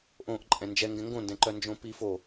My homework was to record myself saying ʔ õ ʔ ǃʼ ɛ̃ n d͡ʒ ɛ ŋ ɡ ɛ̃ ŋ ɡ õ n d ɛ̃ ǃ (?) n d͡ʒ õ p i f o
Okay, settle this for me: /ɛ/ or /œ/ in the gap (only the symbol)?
œ